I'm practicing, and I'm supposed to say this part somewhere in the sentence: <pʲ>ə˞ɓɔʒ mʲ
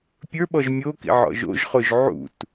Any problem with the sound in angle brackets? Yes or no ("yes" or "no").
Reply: no